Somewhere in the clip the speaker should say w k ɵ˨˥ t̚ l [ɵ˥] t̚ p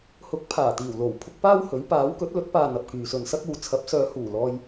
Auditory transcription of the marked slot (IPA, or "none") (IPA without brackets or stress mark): ɵ˨˥